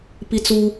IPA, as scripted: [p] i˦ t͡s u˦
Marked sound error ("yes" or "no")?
no